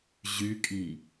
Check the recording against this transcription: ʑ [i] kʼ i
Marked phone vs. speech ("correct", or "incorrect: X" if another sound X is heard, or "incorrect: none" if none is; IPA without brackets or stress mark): incorrect: y